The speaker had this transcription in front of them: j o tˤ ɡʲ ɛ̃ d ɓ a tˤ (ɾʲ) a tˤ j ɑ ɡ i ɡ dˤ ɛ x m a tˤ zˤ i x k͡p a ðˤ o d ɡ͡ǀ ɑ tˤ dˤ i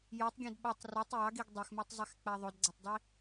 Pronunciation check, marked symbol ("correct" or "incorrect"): incorrect